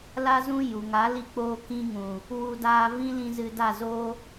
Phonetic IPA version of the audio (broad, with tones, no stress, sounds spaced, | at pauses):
l a˦ z ũ˦ j u˨ ŋ a˨˦ l i˧ k͡p oː˧ k ĩ˧ ŋ ũ˨ | w u˧ d aː˧ v ĩ˦ l ĩ˧ z ɨ˧ d a˦˨ z o˦